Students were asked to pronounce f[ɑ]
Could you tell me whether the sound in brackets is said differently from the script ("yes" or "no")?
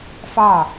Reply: no